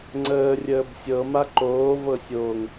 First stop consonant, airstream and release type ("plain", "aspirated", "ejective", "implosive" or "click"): click